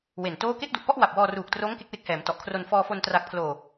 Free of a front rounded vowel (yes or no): yes